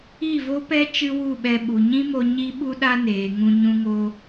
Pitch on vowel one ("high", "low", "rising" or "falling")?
falling